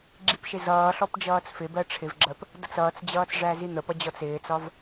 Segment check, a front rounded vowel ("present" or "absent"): absent